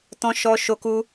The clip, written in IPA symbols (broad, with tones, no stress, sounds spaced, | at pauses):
t ɔ̃˦ ʃ ɔ˦ ʃ o˦ k u˦